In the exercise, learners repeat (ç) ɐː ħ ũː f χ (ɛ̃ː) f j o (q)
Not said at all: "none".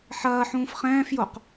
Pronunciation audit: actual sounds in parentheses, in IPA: ħ, ɛ̃ː, q

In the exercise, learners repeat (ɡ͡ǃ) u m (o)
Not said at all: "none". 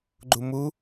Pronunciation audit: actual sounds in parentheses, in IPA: ɡ͡ǃ, u

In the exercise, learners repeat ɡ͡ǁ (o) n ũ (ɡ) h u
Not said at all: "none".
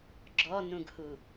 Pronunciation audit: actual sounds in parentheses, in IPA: ɔ, ɡ

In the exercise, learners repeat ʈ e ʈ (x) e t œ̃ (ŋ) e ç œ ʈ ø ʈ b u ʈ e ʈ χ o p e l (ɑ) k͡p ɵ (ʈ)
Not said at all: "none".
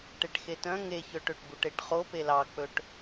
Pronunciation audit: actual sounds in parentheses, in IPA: x, ŋ, ɑ, ʈ

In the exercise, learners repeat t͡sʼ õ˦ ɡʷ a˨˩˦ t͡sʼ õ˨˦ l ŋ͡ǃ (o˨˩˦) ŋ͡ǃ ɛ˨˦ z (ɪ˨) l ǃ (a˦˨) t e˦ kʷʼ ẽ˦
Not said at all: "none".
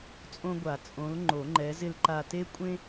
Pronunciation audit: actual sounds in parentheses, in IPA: o˨˩˦, ɪ˦˨, a˦˨

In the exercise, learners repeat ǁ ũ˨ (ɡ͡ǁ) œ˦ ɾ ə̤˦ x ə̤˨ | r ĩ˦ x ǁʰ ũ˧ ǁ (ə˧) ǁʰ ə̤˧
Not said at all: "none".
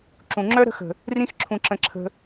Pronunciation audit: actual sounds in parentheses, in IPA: ŋ͡ǁ, ə̃˧

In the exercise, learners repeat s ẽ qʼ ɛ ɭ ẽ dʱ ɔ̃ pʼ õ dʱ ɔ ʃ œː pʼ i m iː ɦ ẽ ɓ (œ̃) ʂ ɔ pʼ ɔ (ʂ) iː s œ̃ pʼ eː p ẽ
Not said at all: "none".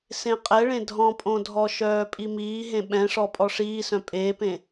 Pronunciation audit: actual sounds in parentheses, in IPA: ɛ̃, ʂ

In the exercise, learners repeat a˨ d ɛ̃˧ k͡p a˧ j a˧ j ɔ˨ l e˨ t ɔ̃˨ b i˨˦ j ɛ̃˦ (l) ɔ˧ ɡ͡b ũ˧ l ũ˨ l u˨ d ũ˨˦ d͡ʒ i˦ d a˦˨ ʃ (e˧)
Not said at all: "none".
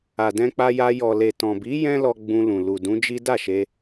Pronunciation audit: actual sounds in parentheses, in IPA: l, e˧

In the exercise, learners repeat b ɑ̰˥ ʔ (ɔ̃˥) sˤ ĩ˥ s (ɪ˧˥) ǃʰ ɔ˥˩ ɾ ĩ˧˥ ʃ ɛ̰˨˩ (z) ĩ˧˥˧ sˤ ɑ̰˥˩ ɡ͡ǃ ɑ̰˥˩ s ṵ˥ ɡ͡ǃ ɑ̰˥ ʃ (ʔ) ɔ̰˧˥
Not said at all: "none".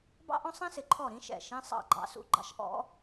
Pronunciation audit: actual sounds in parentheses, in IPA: ɔ̃˥, ɪ˨˩, ʃ, ʔ

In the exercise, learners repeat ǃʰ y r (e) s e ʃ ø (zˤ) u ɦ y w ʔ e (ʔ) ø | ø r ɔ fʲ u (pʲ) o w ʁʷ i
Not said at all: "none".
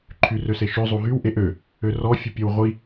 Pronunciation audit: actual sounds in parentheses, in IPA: ø, zˤ, ʔ, pʲ

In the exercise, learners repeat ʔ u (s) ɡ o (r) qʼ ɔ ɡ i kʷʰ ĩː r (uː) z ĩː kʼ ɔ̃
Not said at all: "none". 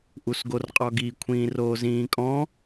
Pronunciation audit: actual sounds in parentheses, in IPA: s, r, oː

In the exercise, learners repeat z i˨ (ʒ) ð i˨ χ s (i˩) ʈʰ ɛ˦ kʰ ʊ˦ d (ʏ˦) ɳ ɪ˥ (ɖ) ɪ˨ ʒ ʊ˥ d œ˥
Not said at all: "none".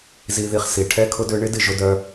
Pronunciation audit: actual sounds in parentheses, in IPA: none, i˩, ʏ˦, d

